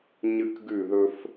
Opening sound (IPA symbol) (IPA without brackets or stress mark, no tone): ɲ